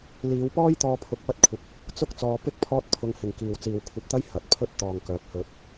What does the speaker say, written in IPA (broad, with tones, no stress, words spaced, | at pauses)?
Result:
liː˨˧wpɔː˥jt̪ɔː˧ pʰʊ˧k̚pɐ˥t̚kʷʰɪ˧k̚ | t͡sʊ˥k̚t͡sɔː˧pɪ˥k̚ pʰɔː˥t̚pʰʊ˧ŋhɪ˨ŋ kiː˨wt͡siː˨wkʷʰɐ˧p̚t̪ɐ˥j hɐ˨˥t̚pʰɵ˥t̚ t̪ɔː˨ŋkœː˨˥p̚hɵ˧t̚